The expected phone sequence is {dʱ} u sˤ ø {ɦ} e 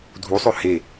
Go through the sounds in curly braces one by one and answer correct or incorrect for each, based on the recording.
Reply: correct, incorrect: h

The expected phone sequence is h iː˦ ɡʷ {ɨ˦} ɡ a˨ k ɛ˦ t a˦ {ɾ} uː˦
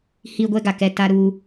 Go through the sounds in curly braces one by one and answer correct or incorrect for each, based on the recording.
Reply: incorrect: ɛ˦, correct

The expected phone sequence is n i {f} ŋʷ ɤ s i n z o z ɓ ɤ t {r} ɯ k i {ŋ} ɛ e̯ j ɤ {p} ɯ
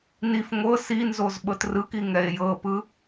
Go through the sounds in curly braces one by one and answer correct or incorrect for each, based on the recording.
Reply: correct, correct, correct, correct

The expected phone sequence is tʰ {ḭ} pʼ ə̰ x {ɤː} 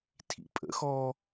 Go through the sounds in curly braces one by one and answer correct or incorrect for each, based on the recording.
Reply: correct, incorrect: ɔː

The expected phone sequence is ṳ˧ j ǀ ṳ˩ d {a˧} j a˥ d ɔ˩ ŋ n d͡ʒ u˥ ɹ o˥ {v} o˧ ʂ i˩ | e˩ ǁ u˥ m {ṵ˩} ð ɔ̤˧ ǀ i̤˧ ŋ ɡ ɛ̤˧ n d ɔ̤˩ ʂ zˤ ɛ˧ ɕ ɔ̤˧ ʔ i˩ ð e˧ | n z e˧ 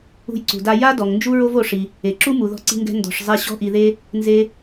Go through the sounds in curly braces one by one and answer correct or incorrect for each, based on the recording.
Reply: correct, correct, incorrect: u˩

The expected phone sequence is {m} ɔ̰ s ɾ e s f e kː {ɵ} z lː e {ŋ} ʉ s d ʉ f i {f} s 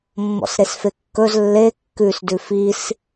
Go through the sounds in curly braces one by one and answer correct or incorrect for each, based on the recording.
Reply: incorrect: mː, correct, incorrect: kː, incorrect: none

